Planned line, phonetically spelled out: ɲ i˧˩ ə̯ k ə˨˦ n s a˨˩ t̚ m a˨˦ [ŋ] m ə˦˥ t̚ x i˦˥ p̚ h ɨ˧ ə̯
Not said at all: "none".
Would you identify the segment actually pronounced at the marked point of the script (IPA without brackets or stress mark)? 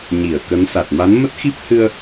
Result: n